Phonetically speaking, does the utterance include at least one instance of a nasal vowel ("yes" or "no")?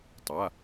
no